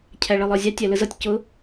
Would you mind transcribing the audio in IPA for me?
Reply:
cʰ æ ɭ ɜ lˠ ɒ zʲ ɑ tʲ æ l ə z ʌ tʲ c ʊ

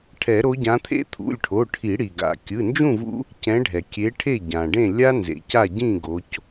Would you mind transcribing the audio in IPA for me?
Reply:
ʈʰ ɛ˨˩˦ ɾ o˨˦ ɟ ã˨˦ t̪ʰ ḛ˦ t̪ʰ ṵ˩˧˩ lʲ ʈʰ o˩˧˩ ʈʰ i˨˩˦ ɽ i˩ ɡ a̰˩ kʲ ɯ˩˧˩ n d͡ʒ ũ˥˨ v ṵ˦ | c ɛ̃˨˦ ɖʱ ɛ˩ kʲ e˨˦ ʈʰ e˥˨ ɟ ã˩ ɖ ẽ˥˨ lʲ a˦ n z ḛ˩ c a˥˨ ɟ ĩ˥˨ ɡ o˨˦ c

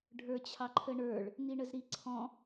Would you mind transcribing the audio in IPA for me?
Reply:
ɖʱ ə˞ t͡ɕʰ ɑ ǃʰ ə ɳ ə˞ ɭ | n̪ i ɳ ə z ɾ i ǀʰ ɔ̃

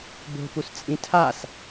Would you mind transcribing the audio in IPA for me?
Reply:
b o̤ p u s t͡sʼ ĩ tʰ a s

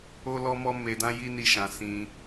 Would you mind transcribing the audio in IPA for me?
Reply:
o˦ l ɔ˦ m ɔ˦ m e˧ d ã˦ j i˦ n i˦ ʃ ã˧ s ĩ˦

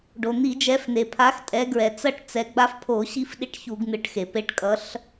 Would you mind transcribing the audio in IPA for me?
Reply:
ɖ o˩ n̪ i˧˩˧ d͡ʒ ɛ˨˦ f n̪ e˩ pʰ a˨˦ x tʼ ɛ˨˦ ɡ ɹ ɛ˩ t͡s ʌ˥˨ ʈ t͡s ɛ˨˦ ɡ͡b a˦ f pʰ o˧˩˧ ɕ i˦ f ɗ i˦ ʈ ç u˧˩˧ ɡ n̪ ɯ˨˦ ʈ x e˩ p e˥˨ ʈ kʼ ʌ˨˦ ɬ

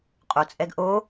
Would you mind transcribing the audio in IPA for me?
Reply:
qʼ o t͡sʼ ɛ ɡ ʔ o

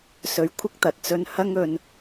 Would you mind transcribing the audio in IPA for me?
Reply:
s ɵ˨˧ ɥ kʷʰ ɪ˥ k̚ t̪ ɐ˨ t̚ t͡s ɵ˧ n h ɐ˥ ŋ ɵ˧ n

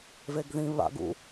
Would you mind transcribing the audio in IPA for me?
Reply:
v e ɡ ð ĩ β a̰ ɡ ṵ

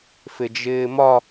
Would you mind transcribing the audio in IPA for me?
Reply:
f ɪ d͡ʒ ɪː m ɒ

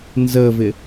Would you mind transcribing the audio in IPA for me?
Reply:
n z ə v ɪ

